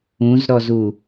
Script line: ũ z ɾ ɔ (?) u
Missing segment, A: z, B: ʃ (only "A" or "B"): A